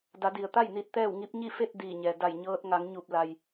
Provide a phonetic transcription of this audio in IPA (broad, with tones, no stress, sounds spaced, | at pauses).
d a˩˧ d i˩ ə̯ t̪ a˥˨ j n i˧ t̚ t̪ ɛː˥˨ w ŋ i˧˥ p̚ ɲ i˥˨ f e˥˨ t̚ d iː˧˩ ɲ ɛː˩ d a˧˩ j ɲ ɤː˧ t̚ ŋ a˩˧ ŋ ɲ u˧˩ p̚ l a˩ j